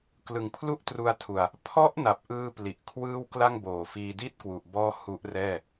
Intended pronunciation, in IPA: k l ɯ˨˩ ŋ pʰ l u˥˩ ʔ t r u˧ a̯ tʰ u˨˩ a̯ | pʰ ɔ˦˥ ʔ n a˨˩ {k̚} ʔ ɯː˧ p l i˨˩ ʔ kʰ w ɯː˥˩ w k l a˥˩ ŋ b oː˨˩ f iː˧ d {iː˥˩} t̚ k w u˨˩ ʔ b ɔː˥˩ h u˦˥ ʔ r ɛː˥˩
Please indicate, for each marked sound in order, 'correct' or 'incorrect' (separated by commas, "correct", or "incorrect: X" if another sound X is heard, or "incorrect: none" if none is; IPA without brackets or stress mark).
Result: incorrect: p̚, incorrect: i˥˩